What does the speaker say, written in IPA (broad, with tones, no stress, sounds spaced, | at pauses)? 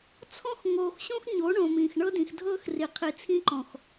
t͡sʰ ɔ̃˦ x ŋ oː˨ x ɕ õ˦ x ɲ o˨˦ ɳ õ˨ m ĩː˨ x ɳ ɤ˦ d ĩ˨ x dʱ ɤː˦ x r i˨ qʰ i˨ t͡sʰ ĩ˦ ǃ ɔ̃˨ x